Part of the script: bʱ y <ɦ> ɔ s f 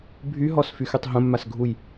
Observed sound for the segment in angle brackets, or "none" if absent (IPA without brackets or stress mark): ɦ